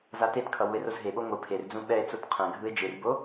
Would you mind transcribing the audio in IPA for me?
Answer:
z a t e t kʰ ʌ w u e̯ r o z ɦ e ɓ o ŋʷ ɯ pʰ e r d͡z ũ ɓ ɛ e̯ t͡s o t qʰ ɛ̃ ɡʱ ɯ e̯ d͡ʒ ɯ r b o

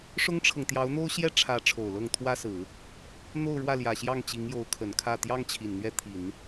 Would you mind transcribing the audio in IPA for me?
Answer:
ʂ ʊ˥ ŋ ʈ͡ʂʰ ɤ˨ ŋ t̪ j ɑ˧˥ ʊ̯ n̪ o˥ ʊ̯ ɕ j ɛ˥ ʈ͡ʂʰ ä˧˥ ʈ͡ʂʰ o˨˩ ʊ̯ l ɤ˥˩ ŋ t̪ʰ w ä˥ s ɹ̩˨˩˦ | n̪ o˥˧ ʊ̯ ɻ w ä˥˩ l j ä˨˩ ɕ j ɑ˥˩ ŋ t͡ɕ i˧˥ ŋ j o˧˥ ʊ̯ kʰ ə˨˩ n kʰ ä˥˩ t̪ j ɑ˥ ŋ t͡ɕʰ i˨˩ n n̪ ɥ ɛ˥˩ t̪ʰ i˨˩˦ n

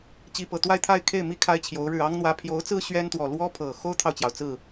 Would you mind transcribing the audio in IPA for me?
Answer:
t͡ɕ i˥˧ p ɤ˥˧ t̪ w a˥˧ ɪ̯ t̪ʰ a˥˧ ɪ̯ kʰ e˥˩ ɪ̯ m i˥ kʰ a˥ ɪ̯ t͡ɕʰ j o˧˥ ʊ̯ ɻ ɻ̩˥˩ ɑ˥ ŋ n̪ w ä˧˥ pʰ j o˧˥ ʊ̯ t͡s ɹ̩˥ ɕ ɥ ɛ˥ n t̪ w ɔ˨˩ l w ɔ˥ pʰ ɤ˨˩ x o˥ ʊ̯ t̪ʰ ɑ˨ ʊ̯ t͡ɕ j ɑ˩ ʊ̯ t͡s ɹ̩˥˩

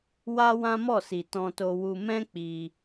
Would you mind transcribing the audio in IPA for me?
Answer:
w a˦ w ã˦ m ɔ˦˨ s i˨ t ɔ̃˧ t o˧ w u˧ m ɛ̃˦ k͡p i˧

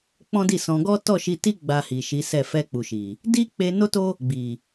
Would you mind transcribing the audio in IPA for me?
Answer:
k͡p ɔ̃˦ d i˦˨ s ɔ̃˧ ɡ ɔ˦ t ɔ˦˨ ʃ i˧ t i˦ ɡ͡b a˧ h i˨ ʃ i˨˦ s ɛ˦˨ f ɛ˧ k͡p u˨ ʃ i˨ | d i˦ k͡p e˧ n o˦ t o˦ | ɡ͡b i˨

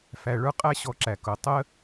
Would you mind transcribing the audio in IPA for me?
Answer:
f æ˧ ɭ ə˞˥ qʼ æ˥ ɕ ɔ˧ ǁ æ˩ k ʊ˩ tˤ ə˥

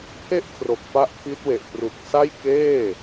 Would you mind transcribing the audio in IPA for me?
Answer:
pʰ e˦˥ ʔ kʰ r o˨˩ k̚ p a˥˩ ʔ pʰ i˦˥ t̚ w e˨˩ ʔ p r u˨˩ k̚ s a˥˩ j k eː˥˩

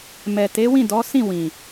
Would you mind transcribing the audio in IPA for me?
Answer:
m ɛ˨ t e˨˦ w ĩ˦˨ d ɔ˨˦ s ĩ˦˨ w ĩ˨

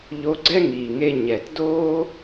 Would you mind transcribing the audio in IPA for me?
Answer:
ʎ o˧ ɡ͡ǀ ɛ˥ ŋ iː˩ ŋ e˧ ɲ ɛ˩ t d oː˥

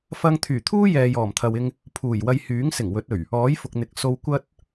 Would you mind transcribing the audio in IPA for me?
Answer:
f ɐ˧ ŋ t̪ʰ yː˨˩ t̪ʰ uː˥ j ɛː˨ j ɔː˨˩ m t̪ʰ ɐ˨ w ɪ˧ ŋ | pʰ uː˨˩ j w ɐ˧ j h yː˨˥ ŋ s ɪ˨˩ ŋ w ɵ˨˥ t̚ ɵ˨˩ ɥ | ɔː˨˥ j f ʊ˨ k̚ n̪ ɪ˨ k̚ s o˧ w kʷ ɐ˥ t̚

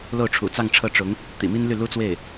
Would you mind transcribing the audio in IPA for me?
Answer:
l o˥˩ ʊ̯ ʈ͡ʂʰ ṵ˨˩ t͡s ɑ˥˧ ŋ ʈ͡ʂʰ ɤ˥˩ ʈ͡ʂ ʊ˧˥ ŋ | t̪ ḭ˨˩ m i˥ n l y˥˩ l u˥ t͡s w e˥˩ ɪ̯

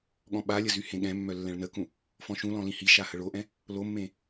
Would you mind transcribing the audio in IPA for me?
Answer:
ɠ ɔ̃ ɓ a lʲ ə z y h ẽ ɠ ɛ̃ mː œ lː ɛ̃ ɭ n ə k ũ | f ɔ̃ ʃ ũ l ɔ̃ l ĩ h i ʃ a h ə ɭ o ʔ ɛ̃ | l o mː ẽ

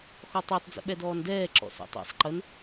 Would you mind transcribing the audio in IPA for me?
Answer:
x ɔ tˤ ø tˤ d͡z ə̰ ɓ ɛ d ɔː n d ɛː ǁ ɔ̰ s ɔ̰ tˤ ɛ̰ sˤ ǃ ə n

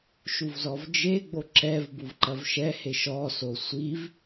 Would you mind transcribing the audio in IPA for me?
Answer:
ʃ u v z ɔ v d͡ʒ e ɡ͡b o ǁ ɛ v b u v ǃ ɐ v ʃ ɛ h e ʃ ɔ s o sʷ i v

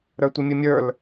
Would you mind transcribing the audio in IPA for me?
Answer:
ɾ ə˞ tʷ ɨ mʲ ɨ mʲ ə˞ l

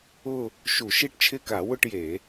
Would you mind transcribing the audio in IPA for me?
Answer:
ʊ˥˧ | ʃ u˧˩˧ ʃ i˥˧ ʈ t͡ʃʰ ɪ˥˧ k a˧˩˧ w ʊ˥˧ ʈ j e˧˩˧

